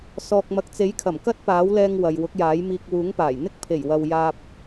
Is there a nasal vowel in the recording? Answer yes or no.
no